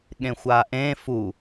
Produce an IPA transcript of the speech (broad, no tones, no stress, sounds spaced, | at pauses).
ɠ ẽ xʷ a ʔ ẽ f u